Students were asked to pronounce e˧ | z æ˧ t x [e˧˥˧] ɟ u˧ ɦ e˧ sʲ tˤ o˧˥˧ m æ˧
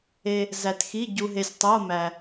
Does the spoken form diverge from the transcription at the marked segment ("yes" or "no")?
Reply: yes